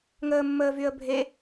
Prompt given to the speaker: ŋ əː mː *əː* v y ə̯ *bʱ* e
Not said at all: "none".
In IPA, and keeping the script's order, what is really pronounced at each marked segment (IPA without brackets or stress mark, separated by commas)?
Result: əː, bʱ